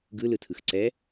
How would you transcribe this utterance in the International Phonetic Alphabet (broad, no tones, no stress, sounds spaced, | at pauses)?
ɡ ɯ l ɯ tʰ ɯ x ǀ ɛ